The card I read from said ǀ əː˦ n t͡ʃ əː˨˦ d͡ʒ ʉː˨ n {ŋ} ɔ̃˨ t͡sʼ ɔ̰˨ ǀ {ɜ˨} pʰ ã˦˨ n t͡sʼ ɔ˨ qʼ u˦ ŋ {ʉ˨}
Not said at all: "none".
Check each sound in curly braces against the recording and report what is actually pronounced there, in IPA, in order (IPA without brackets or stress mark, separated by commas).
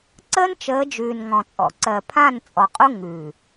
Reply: ŋ, ɜ˨, ʉ˨